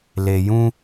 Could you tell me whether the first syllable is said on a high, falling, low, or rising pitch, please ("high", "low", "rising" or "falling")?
low